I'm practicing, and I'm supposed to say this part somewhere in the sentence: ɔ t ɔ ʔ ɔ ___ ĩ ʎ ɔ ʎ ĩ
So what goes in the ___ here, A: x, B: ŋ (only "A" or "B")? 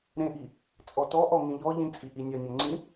B